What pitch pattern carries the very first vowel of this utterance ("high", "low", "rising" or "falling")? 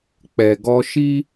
low